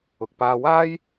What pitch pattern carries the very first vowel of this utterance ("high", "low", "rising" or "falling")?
low